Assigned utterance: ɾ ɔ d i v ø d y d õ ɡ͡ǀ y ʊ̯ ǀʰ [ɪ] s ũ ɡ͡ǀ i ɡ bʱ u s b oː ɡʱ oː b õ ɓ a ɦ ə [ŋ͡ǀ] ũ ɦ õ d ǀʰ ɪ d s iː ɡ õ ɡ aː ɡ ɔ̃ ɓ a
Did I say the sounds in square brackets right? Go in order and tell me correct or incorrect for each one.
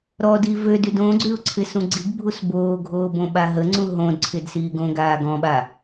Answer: correct, correct

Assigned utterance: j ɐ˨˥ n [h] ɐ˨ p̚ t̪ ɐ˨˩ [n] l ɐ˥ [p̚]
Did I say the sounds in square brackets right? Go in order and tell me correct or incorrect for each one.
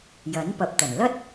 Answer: incorrect, correct, incorrect

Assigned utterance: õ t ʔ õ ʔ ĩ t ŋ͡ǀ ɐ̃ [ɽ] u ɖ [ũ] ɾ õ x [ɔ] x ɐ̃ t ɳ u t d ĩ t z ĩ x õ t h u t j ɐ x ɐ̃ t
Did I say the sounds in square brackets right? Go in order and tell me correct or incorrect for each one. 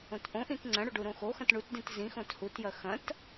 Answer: correct, incorrect, incorrect

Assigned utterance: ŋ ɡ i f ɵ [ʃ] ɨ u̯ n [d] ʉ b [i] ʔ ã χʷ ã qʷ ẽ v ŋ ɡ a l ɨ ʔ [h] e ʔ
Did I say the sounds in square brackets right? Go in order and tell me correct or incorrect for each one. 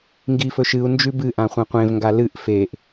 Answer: correct, incorrect, incorrect, incorrect

